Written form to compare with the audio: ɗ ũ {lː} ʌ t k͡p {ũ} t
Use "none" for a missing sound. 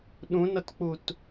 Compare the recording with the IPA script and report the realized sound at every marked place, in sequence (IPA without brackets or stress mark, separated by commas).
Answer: n, u